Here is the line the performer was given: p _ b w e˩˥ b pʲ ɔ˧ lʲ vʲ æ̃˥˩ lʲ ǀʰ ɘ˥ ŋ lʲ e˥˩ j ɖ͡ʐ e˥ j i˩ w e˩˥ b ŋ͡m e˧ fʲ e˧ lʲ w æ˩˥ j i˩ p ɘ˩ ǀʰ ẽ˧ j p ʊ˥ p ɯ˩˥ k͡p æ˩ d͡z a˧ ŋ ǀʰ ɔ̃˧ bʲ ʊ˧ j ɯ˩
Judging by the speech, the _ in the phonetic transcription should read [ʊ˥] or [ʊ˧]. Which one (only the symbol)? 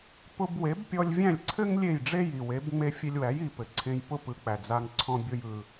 ʊ˧